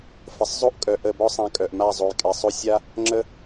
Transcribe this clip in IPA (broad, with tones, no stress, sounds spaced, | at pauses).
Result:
f ə˨ sˤ zˤ o˦ ʔ kʼ œ˨ ʔ ə˦˨ b ɔ˦ sˤ ã˧ kʼ œ˨ ʔ m a˦˨ zˤ o˨ j kʼ ɛ˨ sˤ o˦ sʲ a˦ | ŋ͡ǁ ə˦